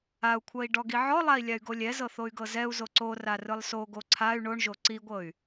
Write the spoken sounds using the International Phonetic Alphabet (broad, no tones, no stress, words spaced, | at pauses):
au̯kʷʰɤi̯ ɖɔɡiʕɔlˠai̯ lʲay̯ɡolʲɛzɤ θoy̯ɡɤzɛu̯zo ǀora rɯlˠsoɡo ǀʰay̯ ɳoɳʒo ǀiɡʷɤy̯